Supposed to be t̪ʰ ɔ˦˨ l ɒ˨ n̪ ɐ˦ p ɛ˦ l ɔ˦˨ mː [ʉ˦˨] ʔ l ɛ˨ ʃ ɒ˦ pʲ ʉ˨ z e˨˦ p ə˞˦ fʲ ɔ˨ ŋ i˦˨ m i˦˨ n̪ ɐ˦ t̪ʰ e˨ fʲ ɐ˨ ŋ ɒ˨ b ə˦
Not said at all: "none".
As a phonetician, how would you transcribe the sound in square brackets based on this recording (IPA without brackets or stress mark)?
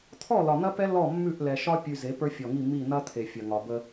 ʉ˦˨